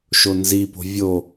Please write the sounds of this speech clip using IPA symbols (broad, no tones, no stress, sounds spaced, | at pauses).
ʃ o n z i p o̤ vʲ o